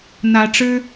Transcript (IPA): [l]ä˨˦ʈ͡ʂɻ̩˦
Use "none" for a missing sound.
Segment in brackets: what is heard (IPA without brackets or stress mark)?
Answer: n̪